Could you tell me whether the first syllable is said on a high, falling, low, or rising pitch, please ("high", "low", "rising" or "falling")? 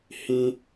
high